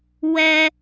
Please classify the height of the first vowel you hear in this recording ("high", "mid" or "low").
mid